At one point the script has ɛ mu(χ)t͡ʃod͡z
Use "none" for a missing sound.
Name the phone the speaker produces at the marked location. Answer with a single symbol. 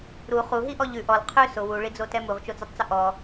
ʁ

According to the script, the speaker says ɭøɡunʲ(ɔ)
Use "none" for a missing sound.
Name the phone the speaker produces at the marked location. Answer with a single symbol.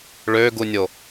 o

